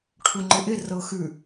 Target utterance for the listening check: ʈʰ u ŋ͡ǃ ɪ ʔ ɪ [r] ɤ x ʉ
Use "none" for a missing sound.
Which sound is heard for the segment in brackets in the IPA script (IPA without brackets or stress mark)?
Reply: r